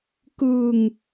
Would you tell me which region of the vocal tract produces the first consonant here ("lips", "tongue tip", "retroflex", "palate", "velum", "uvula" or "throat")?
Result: velum